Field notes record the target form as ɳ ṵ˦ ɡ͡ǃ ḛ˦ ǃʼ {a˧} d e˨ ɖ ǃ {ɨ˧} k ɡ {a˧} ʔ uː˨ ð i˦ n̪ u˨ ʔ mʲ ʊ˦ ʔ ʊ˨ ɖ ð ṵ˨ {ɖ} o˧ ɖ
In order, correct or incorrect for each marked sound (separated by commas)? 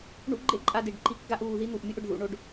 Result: correct, incorrect, correct, incorrect